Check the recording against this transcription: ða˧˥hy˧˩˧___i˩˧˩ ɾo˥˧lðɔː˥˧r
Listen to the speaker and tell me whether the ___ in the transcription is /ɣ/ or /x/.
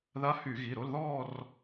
ɣ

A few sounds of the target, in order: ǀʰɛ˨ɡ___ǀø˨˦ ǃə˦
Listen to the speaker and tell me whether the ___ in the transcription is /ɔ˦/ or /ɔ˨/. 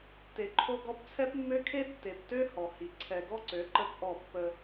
ɔ˦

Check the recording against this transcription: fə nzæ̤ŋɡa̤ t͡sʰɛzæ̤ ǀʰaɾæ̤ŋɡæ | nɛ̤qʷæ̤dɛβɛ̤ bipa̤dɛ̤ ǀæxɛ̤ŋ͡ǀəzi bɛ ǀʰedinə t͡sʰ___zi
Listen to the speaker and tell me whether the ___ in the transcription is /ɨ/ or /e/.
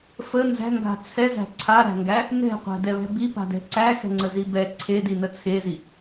e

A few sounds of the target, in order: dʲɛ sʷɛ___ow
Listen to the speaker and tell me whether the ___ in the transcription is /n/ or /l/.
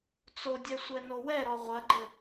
n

